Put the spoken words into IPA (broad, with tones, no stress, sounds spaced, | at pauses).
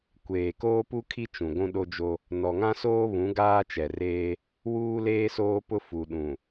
kʷ eː˨ k oː˦ p u˦ kʰ i˦ t͡ʃ ũ˨ ɡʷ ũ˦ ɗ o˦ d͡ʒ o˦ | n ɔ˨ ŋ ã˦ s oː˦ β ũ˨˦ ɡ aː˦ t͡ʃ ɛ˨ r eː˦ | w uː˦ l eː˦ s oː˦ p ʊ˦ f u˨ ɗ ũ˨